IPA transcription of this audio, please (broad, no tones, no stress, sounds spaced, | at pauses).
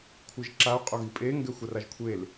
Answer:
kʷʰ ɯ ʒ ǁ a u̯ qʼ o ɣ i pʼ e ŋ ɡ ɛ xʷ a r a ʒ kʷʰ e l